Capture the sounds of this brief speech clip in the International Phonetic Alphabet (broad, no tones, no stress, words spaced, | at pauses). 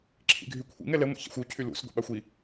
ǁʰḭɡʱykʷʰḭŋ ɛlɛ ŋʷḭça̰xʷu cʰylṵs ɡʷḛɓaxʷi